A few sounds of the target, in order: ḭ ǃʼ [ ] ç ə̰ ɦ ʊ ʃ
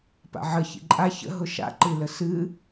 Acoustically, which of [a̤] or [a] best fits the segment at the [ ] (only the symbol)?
a